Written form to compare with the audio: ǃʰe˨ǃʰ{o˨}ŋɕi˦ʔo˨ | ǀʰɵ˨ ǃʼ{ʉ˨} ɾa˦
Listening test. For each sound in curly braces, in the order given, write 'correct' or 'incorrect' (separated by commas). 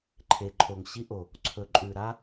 correct, correct